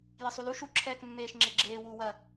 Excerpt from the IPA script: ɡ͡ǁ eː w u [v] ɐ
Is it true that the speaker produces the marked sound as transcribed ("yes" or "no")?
no